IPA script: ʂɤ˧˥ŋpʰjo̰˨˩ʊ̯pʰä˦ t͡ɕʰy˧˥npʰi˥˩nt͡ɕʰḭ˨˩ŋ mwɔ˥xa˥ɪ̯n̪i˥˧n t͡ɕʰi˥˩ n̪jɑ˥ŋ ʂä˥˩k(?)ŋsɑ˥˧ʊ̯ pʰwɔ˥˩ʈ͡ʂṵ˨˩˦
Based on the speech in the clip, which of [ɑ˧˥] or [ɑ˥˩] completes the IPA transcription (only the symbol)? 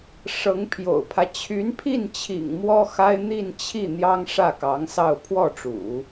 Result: ɑ˧˥